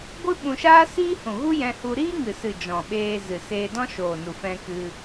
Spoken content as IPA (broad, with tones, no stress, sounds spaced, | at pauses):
ɡʷ ɨ˦ ɓ ũ˧ ʃ aː˦ s iː˦ h ũ˨ ɣ u˦ j ɛ̃˧ h u˧ ɾ iː˦ ŋ ɨ˨ s ɨ˨ d͡ʒ ɔ̃˨ ɓ eː˧ z ɨ˨ s eː˧ d ɔ̃˦ ʃ oː˨ n u˨ f ɛ̃˧ k ɨ˧